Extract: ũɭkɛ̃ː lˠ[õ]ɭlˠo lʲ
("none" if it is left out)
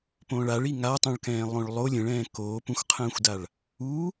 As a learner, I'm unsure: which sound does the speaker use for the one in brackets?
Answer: õ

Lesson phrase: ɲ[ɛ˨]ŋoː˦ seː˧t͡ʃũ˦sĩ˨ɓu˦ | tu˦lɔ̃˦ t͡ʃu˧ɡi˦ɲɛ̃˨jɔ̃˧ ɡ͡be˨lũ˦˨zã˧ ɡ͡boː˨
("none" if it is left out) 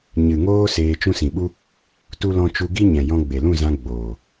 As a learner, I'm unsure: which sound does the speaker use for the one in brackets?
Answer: ɨ˨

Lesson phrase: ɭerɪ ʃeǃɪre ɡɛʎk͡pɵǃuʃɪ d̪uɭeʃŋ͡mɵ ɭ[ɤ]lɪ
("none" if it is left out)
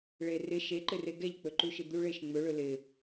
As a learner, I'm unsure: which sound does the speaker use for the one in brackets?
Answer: ɵ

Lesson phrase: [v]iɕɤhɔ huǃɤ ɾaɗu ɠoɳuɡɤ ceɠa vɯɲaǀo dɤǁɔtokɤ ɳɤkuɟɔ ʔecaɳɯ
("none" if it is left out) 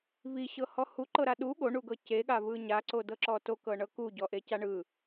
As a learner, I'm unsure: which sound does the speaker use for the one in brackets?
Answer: v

